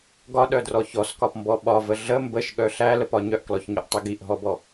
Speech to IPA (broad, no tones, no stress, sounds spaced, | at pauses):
ɡ ɒ ɗ œ d r ɔ ç ɔ s k ɒ p m b ɔ ɓ ɒ v ə ɮ ə m b ə ʃ ɠ œ ɬ æ l ə p ɒ ɲ œ ʔ k l ɔ ç ɲ ɔ ʔ tˤ i ɡ i ʔ ɦ ɔ b ɔ